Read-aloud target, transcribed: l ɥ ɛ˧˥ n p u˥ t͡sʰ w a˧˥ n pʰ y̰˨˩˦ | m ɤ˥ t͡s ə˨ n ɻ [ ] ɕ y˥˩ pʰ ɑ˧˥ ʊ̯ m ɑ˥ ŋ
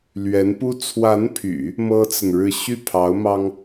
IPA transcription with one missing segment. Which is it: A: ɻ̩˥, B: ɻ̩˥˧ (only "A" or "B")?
B